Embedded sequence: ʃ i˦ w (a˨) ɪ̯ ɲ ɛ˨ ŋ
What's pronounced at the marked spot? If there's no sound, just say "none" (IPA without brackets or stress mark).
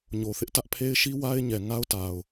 a˦